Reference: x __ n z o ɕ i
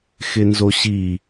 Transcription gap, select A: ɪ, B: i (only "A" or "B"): A